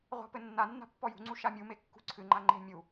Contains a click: yes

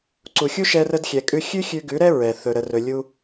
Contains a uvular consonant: no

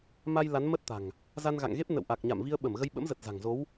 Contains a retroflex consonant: no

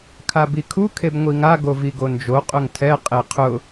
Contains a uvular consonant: yes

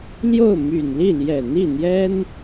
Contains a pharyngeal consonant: no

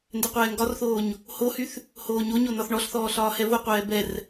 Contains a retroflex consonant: yes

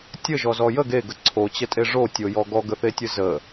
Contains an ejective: yes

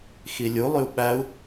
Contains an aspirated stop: no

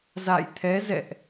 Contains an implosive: no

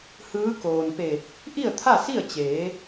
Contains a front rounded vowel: no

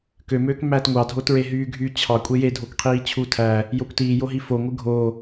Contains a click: no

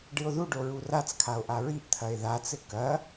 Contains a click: no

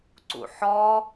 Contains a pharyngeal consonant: yes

